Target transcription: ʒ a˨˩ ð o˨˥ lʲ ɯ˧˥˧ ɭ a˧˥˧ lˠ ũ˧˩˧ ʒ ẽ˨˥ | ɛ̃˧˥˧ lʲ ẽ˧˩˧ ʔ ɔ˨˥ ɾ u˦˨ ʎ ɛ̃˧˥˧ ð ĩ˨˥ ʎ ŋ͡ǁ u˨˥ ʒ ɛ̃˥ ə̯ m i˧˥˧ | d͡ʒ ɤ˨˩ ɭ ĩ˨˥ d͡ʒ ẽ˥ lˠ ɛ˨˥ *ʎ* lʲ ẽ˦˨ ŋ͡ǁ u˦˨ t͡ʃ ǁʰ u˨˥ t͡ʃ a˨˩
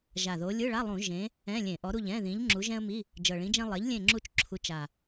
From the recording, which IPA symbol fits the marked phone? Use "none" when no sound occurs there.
ʎ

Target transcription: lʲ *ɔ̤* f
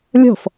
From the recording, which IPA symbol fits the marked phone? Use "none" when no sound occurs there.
ɔ̤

